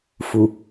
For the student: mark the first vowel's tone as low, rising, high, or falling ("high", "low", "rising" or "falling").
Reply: low